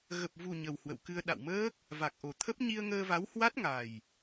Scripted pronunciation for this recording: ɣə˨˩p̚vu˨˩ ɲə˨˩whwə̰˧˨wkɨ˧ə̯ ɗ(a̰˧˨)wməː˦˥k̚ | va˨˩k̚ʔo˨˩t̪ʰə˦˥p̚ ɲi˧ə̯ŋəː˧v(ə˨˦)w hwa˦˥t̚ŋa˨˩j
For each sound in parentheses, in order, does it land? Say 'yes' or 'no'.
yes, no

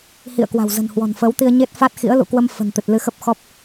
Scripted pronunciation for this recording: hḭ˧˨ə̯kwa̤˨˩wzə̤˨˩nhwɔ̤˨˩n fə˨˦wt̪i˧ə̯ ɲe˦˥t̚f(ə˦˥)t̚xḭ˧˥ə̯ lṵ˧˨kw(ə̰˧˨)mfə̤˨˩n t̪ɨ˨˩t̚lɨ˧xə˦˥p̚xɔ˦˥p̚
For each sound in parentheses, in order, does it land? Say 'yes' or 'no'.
no, no

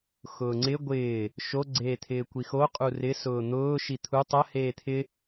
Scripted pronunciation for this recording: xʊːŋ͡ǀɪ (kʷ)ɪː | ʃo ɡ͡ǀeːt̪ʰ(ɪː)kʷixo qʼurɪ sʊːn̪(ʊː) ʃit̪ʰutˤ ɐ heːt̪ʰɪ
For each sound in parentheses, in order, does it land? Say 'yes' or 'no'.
no, yes, yes

